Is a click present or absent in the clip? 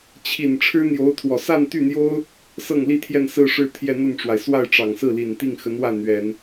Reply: absent